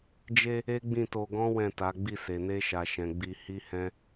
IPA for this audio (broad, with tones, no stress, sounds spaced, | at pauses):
d͡ʒ e˧ | e˦ ɡ͡b ĩ˦˨ t o˧ ɡ ɔ̃˦ w ɛ̃˦˨ t a˨˦ ɡ͡b i˦˨ s e˨ n e˧ ʃ a˨ ʃ ɛ̃˨ ɡ͡b i˧ h i˦ h ɛ̃˦